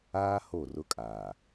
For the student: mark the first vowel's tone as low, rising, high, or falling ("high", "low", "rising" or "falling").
high